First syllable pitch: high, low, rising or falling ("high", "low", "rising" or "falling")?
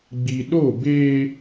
low